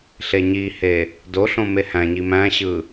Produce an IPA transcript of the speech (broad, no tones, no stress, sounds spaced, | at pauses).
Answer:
ɬ e ɲ i h e | d o ɬ õ m e h æ̃ ɲ i m æ̃ ɕ ɯ